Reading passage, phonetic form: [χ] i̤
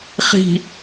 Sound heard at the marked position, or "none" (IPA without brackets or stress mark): χ